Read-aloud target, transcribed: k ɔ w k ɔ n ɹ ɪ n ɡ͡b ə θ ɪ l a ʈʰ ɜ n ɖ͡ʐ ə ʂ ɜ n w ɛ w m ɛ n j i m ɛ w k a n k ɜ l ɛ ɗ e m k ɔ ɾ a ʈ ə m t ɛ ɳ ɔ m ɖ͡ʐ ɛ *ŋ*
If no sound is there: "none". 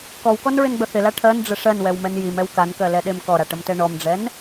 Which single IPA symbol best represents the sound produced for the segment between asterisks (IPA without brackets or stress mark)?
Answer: n